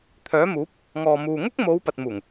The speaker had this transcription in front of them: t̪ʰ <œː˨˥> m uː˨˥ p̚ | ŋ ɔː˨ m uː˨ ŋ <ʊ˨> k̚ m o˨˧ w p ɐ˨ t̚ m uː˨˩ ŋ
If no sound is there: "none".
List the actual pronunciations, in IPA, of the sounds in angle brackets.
œː˨˥, ʊ˥

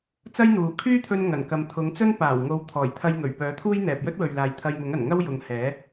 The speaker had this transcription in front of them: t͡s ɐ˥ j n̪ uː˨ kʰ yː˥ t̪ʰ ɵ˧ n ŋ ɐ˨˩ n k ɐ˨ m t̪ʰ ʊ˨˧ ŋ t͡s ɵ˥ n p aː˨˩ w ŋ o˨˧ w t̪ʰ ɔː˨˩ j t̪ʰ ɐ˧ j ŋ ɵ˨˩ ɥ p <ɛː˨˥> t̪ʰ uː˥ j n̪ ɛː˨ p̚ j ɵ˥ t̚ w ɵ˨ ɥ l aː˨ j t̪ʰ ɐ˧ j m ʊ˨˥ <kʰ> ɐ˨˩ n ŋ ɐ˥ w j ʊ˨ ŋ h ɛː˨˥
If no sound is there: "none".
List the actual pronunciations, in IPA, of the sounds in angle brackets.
œː˨˥, ŋ

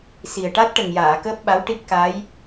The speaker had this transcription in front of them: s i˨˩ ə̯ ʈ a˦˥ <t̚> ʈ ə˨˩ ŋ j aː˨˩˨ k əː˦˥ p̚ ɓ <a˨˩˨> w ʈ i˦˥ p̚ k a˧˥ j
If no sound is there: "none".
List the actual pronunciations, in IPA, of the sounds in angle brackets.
t̚, a˧˥

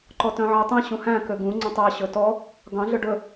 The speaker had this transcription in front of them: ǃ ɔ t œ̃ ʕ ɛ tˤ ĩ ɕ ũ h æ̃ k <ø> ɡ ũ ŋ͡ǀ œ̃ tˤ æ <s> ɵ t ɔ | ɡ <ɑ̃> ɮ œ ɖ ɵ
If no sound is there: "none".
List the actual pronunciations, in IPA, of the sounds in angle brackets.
ø, ɕ, ɑ̃

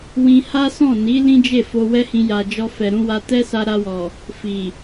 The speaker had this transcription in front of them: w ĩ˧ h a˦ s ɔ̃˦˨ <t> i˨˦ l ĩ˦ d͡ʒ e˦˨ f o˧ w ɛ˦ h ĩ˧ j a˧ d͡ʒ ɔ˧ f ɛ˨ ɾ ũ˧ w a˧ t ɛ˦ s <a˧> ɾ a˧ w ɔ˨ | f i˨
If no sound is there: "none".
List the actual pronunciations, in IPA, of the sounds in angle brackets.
n, a˧

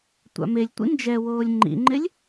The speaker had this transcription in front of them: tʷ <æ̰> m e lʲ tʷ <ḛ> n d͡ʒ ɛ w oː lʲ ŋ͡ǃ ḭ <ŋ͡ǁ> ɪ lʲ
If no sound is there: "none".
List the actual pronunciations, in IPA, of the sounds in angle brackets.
a̰, ḭ, ŋ͡ǃ

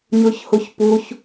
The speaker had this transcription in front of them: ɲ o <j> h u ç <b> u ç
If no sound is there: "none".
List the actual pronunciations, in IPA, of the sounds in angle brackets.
ç, p

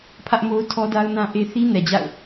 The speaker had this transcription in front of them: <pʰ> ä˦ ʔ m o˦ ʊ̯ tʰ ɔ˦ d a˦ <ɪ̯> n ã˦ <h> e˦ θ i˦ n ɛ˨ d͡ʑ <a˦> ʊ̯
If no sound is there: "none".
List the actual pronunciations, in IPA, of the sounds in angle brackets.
pʰ, ʊ̯, ʔ, a̰˦˨

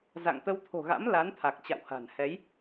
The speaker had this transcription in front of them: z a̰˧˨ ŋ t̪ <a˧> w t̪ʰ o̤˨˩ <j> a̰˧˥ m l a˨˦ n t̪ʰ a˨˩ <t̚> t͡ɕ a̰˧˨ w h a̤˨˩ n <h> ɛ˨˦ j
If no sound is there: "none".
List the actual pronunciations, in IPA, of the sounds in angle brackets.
ə˧, ɣ, k̚, h

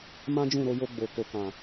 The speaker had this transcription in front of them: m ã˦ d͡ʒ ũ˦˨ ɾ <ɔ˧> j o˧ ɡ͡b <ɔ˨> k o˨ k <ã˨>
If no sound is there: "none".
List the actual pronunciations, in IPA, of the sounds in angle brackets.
o˧, o˨, ã˨

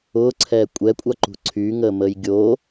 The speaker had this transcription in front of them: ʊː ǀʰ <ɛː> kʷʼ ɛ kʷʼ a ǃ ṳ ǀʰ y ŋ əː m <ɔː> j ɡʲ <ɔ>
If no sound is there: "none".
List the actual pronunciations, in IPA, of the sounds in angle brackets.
ɛː, əː, o

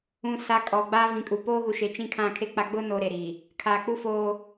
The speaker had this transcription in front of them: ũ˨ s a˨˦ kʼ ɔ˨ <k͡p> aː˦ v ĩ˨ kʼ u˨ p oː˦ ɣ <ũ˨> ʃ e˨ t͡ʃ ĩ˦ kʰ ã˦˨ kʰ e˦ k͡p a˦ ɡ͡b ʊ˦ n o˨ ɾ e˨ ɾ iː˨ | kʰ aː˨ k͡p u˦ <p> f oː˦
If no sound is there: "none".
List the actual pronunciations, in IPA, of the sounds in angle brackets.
ɡ͡b, u˨, none

